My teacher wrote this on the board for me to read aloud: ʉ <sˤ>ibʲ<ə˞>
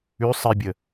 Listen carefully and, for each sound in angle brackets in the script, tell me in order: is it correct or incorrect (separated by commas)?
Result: correct, incorrect